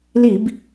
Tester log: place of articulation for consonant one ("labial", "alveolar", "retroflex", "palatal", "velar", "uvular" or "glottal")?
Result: alveolar